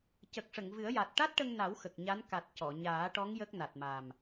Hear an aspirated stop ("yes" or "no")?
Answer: no